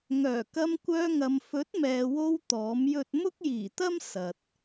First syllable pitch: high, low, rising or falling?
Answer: low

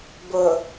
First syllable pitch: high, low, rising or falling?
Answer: low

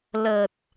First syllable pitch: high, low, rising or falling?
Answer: low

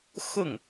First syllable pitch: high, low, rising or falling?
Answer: falling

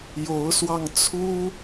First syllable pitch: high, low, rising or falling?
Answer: rising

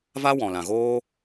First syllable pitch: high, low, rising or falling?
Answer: high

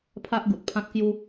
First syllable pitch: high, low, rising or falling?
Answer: high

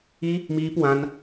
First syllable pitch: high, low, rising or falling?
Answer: high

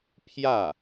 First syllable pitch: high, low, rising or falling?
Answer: falling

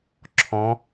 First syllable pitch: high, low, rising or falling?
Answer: rising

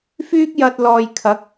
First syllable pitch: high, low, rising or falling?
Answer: high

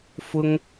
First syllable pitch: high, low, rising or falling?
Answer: high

